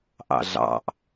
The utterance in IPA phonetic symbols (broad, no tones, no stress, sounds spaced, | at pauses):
ʔ ɑ̰ ɮ ɑ̰ ʔ